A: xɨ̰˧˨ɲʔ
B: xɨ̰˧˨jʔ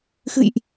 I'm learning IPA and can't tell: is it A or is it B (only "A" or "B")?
B